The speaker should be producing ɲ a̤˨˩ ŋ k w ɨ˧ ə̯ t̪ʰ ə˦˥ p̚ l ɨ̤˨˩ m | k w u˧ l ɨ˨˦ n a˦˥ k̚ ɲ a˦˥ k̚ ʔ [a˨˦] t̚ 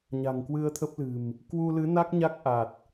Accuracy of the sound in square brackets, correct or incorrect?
incorrect